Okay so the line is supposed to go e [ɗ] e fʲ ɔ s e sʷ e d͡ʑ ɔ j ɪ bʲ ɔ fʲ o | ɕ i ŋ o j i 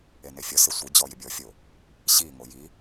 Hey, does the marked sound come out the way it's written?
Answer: no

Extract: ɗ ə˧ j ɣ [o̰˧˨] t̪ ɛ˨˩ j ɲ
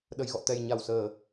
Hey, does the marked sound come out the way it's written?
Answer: no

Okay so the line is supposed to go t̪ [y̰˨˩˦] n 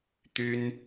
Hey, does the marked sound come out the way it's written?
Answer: no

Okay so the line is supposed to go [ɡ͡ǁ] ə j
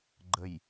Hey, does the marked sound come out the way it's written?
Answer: no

